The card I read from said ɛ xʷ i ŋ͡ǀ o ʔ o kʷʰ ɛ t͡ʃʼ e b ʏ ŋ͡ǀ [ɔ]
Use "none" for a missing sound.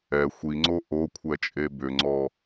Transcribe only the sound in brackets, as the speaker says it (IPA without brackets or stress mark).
ɔ